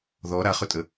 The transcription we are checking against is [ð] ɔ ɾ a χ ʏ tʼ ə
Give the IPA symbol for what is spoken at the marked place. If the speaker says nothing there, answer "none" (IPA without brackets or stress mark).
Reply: ð